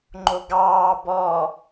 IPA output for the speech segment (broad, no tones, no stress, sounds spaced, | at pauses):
ŋ͡ǃ o ɡ ɑː b ɔ